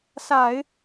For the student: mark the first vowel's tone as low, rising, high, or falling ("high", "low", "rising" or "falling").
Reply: low